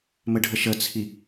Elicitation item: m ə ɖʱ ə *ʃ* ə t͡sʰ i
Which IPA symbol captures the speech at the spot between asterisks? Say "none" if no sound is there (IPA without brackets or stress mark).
ʃ